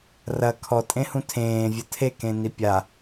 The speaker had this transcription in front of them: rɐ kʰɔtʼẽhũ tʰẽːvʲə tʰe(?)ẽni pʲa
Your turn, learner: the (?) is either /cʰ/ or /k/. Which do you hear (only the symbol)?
k